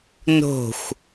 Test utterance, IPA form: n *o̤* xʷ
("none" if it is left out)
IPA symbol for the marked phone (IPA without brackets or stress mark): o̤